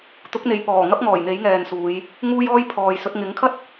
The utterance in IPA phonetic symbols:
t̪ ʊ˨˥ k̚ n̪ e˨ j p ɔː˨˩ ŋ ɐ˥ p̚ ŋ ɔː˨˩ j n̪ e˨˥ j ŋ ɛː˨ n s uː˨˧ j | ŋ uː˥ j ɔː˥ j pʰ ɔː˨ j s ɵ˨˥ t̚ ŋ ɪ˨˥ ŋ kʰ ɐ˥ t̚

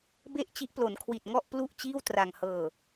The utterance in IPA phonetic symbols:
b e˥˩ ʔ t͡ɕ i˦˥ ʔ p l o˩˦ n kʰ w i˨˩ t̚ ŋ ɔ˥˩ ʔ p l u˥˩ ʔ t͡ɕ iː˥˩ w t r a˨˩ ŋ h ɤː˨˩

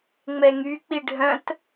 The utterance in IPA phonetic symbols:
ŋ͡m ɛ ŋ y k͡p i ɖʱ œ̃ t

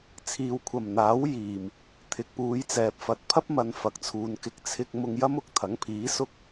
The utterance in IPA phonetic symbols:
t͡sʰ iː˨ w kʷʰ ɐ˨˩ m n̪ aː˨˥ w j iː˨˩ m | t̪ʰ ɪ˨ k̚ p uː˨˧ j t͡s ɛː˨ p̚ f ɐ˨˥ t̚ pʰ ɐ˥ p̚ m ɐ˨ n f ɐ˨ k̚ t͡sʰ uː˨ n k ɪ˧ k̚ t͡sʰ ɪ˧ k̚ m ʊ˧ ŋ j ɐ˥ m ʊ˨ k̚ t̪ʰ ɐ˨˥ ŋ pʰ iː˨˥ s ʊ˥ k̚

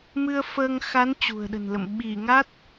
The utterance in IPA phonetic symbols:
m ɨ˧ ə̯ f əː˧ ŋ x a˨˦ n t͡ɕ ṳ˨˩ ə̯ ɗ ə̤˨˩ n l ə̰˧˨ m ɓ i˧˩ ŋ a˦˥ t̚

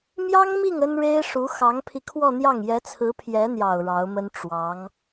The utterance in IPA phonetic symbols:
m j ɑ˥ ŋ m i˥˩ ŋ ə˥ n ɻ e˥ ɪ̯ ʂ u˧˥ x ɑ˧˥ ŋ pʰ i˧ kʰ w ɔ˥˧ n̪ j ɑ˥˩ ŋ j ɛ˧˥ t͡sʰ ɹ̩˧˥ pʰ j ɛ˧˥ n̪ j ɑ˨˩ ʊ̯ ɻ ɑ˧˥ ʊ̯ m ə˥ n ʈ͡ʂ w ɑ˧˥ ŋ

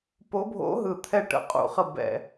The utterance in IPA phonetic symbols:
p o˧˥ bʱ o̰˧˥ ɦ ɯ˨˩ t̪ʰ ɛ˦˨ ʈ ə̰˧˥ qʼ ṵ˧˩˧ χ ə˦˨ b ɛ̰˧˩˧

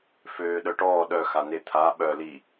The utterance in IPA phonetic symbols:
f øː ɗ œ ʈ ɔː ɗ œ x a n e t̪ʰ a ɓ œ l i

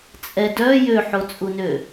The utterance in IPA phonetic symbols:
t͡sʼ ɛ d œ j ø ħ o t͡sʼ u n ø

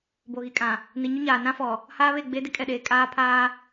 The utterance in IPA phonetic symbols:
b o˨ ɣ i˨ kʼ ã˨ | n i˨ ɲ ʊ˦ ɲ aː˨ n ã˦ f ɔ˨ | h aː˦ β e˦˨ ɡ͡b e˦ d ɪ˦ kʼ ɛ˨ ɗ eː˨ kʼ aː˦ pʰ aː˦

